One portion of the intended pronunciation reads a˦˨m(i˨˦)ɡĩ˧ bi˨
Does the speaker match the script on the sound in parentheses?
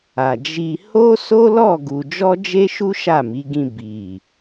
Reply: yes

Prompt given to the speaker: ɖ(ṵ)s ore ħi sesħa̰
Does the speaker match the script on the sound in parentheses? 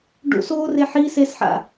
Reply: yes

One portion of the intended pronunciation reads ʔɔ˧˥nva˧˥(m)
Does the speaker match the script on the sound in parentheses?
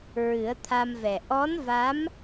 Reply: yes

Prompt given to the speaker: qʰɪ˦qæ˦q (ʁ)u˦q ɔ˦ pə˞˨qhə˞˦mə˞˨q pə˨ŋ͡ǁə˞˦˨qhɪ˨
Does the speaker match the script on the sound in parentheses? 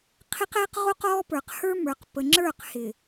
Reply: yes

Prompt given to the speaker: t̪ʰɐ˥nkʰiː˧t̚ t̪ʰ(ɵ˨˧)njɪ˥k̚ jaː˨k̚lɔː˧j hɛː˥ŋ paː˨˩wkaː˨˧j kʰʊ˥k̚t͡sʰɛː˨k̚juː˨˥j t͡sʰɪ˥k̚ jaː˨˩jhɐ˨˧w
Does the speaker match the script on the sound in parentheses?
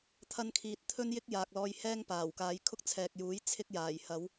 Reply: no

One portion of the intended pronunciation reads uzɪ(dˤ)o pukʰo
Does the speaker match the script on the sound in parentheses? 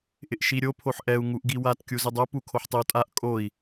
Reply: yes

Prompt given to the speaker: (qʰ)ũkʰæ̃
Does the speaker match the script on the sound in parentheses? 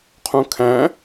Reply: yes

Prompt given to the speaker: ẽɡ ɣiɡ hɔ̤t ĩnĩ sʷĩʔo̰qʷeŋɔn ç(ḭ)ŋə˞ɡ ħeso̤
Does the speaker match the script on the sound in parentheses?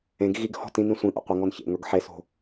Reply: no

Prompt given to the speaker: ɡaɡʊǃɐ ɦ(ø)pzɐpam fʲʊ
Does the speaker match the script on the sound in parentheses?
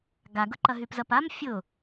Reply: no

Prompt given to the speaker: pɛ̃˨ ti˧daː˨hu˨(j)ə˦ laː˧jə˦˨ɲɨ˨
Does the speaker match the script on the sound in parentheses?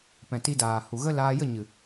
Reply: no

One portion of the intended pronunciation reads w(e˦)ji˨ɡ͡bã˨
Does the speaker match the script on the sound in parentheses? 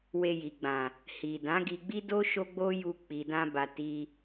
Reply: no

